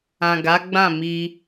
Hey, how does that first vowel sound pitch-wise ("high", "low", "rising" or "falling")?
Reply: low